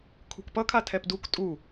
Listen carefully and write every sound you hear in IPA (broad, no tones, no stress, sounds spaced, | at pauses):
kʰ ṳ k p ʌ kʰ a tʰ ɛ p d u k tʼ u